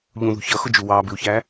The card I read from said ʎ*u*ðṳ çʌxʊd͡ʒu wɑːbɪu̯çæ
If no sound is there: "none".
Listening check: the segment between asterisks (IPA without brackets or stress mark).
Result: ũ